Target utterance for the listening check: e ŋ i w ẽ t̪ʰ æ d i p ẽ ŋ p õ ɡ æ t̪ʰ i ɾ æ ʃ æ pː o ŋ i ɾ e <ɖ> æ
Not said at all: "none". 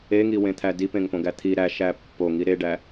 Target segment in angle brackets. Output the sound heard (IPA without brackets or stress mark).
ɖ